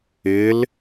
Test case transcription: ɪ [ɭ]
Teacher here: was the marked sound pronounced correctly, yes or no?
no